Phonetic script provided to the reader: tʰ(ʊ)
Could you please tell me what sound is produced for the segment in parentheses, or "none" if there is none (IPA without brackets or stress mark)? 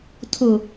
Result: ʊ